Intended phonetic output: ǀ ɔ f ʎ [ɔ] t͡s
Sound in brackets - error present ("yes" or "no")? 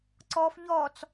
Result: no